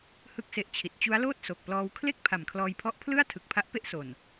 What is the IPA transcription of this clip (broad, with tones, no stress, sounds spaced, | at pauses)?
h ɯ˥˩ k̚ s e˦˥ ʔ t͡ɕʰ i˨˩ t̚ t͡ɕ u˦˥ a̯ l oː˥˩ t̚ s o˨˩ k̚ p l ɔː˧ w kʰ l e˥˩ k̚ pʰ a˨˩ m kʰ l ɔː˧ j pʰ ɔ˦˥ ʔ pʰ l ɯ˥˩ a̯ tʰ ɯ˨˩ k̚ pʰ a˦˥ ʔ p e˥˩ ʔ s o˨˩ n